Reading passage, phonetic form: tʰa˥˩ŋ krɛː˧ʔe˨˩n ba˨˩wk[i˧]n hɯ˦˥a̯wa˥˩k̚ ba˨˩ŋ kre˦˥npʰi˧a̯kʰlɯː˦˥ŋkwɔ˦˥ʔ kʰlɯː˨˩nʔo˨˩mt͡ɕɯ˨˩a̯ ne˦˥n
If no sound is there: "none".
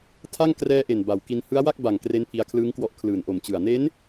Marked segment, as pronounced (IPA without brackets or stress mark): i˧